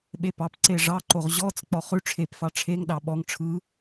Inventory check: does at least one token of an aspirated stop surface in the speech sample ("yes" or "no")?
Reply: yes